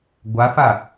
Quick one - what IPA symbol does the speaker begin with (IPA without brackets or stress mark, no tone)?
ɡʷ